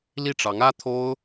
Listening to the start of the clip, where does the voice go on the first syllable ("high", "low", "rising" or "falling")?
falling